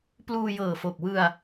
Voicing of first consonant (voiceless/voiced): voiceless